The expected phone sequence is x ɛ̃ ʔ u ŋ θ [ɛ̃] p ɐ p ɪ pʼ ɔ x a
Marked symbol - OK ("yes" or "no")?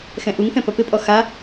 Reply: yes